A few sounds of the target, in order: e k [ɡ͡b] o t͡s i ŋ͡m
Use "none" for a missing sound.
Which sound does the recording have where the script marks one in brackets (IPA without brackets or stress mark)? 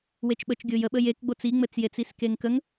ɡ͡b